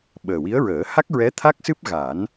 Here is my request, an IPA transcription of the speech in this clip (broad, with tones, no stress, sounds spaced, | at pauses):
ɓ əː˨˩ w i˧˥ ə̯ ɹ əː˨˩˦ h a˦˥ k̚ ɹ ɛ˧˥ t̪ʰ a˦˥ k̚ s ɨ˦˥ p̚ ɣ a˨˩˦ n